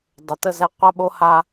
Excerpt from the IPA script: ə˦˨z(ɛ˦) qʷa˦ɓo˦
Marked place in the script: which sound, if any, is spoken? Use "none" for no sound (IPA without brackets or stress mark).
ɛ˦